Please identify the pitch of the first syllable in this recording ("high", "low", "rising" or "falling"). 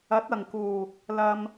rising